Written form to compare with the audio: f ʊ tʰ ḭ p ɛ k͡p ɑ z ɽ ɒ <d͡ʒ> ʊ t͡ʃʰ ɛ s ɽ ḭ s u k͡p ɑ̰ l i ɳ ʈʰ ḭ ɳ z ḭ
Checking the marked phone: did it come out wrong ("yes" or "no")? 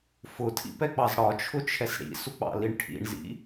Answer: yes